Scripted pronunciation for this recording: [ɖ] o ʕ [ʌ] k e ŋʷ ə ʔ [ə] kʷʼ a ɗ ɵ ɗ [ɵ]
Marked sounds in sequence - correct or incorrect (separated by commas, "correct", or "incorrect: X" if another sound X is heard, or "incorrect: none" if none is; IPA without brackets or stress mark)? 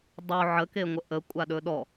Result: incorrect: dˤ, incorrect: ə, correct, incorrect: ɔ